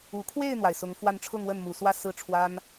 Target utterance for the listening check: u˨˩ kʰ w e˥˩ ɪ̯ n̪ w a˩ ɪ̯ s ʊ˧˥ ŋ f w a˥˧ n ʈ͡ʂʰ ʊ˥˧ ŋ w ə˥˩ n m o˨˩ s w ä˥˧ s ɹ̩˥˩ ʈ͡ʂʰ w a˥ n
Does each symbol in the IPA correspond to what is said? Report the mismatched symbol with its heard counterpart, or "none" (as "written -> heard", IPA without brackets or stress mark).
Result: o˨˩ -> u˨˩